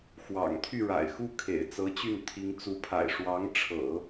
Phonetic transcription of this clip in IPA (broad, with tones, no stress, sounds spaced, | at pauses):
x w ɑ̰˨˩ ŋ t̪ʰ y˥˩ ɻ a̰˨˩ ɪ̯ x u˥˩ kʰ ḛ˨˩ ɪ̯ t͡s ɤ˧˥ t͡ɕ y˥˩ n t̪ʰ i˧˥ ŋ t͡s u˧˥ pʰ a̰˨˩ ɪ̯ ʂ w ɑ˧˥ ŋ ʈ͡ʂʰ ɤ̰˨˩˦